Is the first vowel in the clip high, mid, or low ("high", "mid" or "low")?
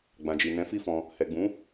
low